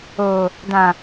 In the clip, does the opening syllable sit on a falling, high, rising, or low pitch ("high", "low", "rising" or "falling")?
low